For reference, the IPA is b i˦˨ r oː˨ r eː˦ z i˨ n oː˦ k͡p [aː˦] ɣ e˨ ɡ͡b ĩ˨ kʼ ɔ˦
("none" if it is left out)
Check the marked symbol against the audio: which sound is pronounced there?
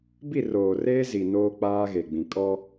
aː˦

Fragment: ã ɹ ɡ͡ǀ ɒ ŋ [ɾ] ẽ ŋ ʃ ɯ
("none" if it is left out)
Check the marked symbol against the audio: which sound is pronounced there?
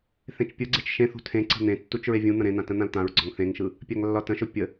θ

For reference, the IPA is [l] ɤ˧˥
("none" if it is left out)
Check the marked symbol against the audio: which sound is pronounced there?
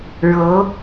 ɻ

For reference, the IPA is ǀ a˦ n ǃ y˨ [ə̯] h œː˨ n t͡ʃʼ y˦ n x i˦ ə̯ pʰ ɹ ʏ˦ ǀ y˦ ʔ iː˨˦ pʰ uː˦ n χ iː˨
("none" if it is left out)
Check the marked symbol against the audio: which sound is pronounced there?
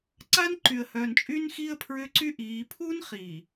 ə̯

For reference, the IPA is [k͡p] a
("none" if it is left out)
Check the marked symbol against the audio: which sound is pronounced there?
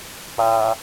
k͡p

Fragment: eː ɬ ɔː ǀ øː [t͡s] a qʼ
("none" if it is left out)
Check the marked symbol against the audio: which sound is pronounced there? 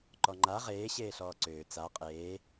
t͡s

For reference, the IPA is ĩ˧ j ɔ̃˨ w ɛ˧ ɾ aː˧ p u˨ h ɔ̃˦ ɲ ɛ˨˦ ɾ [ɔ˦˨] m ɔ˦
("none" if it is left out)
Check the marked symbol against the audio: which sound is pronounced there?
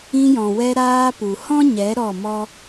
ɔ˦˨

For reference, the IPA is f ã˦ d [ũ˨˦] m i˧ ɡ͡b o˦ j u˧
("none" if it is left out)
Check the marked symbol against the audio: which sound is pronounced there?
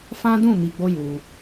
ũ˦˨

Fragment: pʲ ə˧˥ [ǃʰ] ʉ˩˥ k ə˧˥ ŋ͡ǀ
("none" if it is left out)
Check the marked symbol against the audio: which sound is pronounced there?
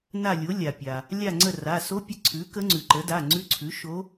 ǀʰ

